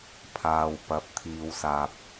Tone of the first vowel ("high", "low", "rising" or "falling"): low